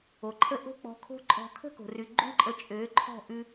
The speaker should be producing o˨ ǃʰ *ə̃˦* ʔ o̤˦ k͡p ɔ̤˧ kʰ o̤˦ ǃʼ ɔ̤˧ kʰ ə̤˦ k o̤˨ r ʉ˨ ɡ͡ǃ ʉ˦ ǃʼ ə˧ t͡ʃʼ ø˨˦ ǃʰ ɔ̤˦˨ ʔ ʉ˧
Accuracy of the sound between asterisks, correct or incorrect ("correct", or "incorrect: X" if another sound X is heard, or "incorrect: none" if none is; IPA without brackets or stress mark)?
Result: incorrect: ə˦